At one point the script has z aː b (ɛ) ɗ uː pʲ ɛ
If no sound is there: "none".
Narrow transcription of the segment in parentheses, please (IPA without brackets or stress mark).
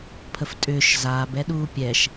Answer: ɛ